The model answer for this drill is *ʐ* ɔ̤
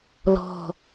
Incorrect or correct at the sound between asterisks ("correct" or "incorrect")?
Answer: incorrect